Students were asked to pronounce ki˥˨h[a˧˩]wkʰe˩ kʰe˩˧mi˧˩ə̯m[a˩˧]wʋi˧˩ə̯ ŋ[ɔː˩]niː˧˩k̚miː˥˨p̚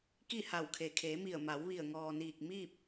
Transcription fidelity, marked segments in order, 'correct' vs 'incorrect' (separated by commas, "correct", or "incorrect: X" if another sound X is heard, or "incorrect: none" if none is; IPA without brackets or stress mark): correct, correct, correct